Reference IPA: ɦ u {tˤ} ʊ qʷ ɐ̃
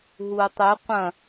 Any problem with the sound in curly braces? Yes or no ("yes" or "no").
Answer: no